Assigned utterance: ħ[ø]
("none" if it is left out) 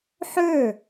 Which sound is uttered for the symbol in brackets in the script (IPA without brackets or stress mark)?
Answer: ø